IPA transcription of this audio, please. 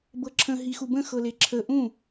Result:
b ɤ ǁʰ ə̃ ɦ i x u b ə̃ x ɤ l e ǁʰ ə ʔ ũ

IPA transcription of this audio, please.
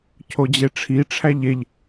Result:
cʰ o d͡ʑ e ʈ͡ʂʰ i ʈ͡ʂʰ æ ʎ e ʎ

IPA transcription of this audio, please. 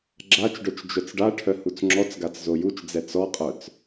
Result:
ɡ͡ǁ a t͡ʃ ɖ œ t͡ʃ d͡ʒ œ t͡s ɖ a ʈʰ œ h u t͡s ŋ͡ǁ ɔ t͡s ɡ a t͡s z o j u t͡ʃ d͡z ɛ t͡s ɔ qʼ œ t͡s

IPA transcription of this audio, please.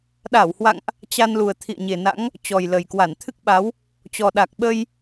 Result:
ɗ a˧˩ w h w a̰˧˨ ŋ ʔ | t͡ɕ a˧ n l u˨˩ ə̯ t̪ʰ ḭ˧˨ ə̯ ɲ e˨˩ n a̰˧˥ ŋ | t͡ɕ ɔ˨˩ j l ə˨˩ j k w a˧˩ n t̪ʰ ɨ˦˥ k̚ ɓ a˨˦ w | t͡ɕ ɔ˨˩ ɗ a˨˩ k̚ ɓ ə˧ j

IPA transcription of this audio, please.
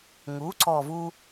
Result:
ŋ u˩˥ ǀ ɔ˨˩ v u˧

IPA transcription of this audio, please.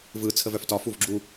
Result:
v ɯ t͡sʰ ə v œ f t ɒ f u v ɡ͡ǁ u

